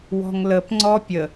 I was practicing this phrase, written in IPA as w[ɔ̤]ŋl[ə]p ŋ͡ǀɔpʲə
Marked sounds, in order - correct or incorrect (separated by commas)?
correct, correct